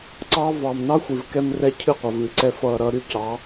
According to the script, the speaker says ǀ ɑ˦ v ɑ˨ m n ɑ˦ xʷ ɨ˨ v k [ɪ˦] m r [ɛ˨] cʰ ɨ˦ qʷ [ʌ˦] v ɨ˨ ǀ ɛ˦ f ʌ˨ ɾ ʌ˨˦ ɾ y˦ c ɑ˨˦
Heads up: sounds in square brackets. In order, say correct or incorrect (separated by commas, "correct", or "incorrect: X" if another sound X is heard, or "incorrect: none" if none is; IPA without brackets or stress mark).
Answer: incorrect: ɛ˦, incorrect: ɛ˦, incorrect: ʌ˨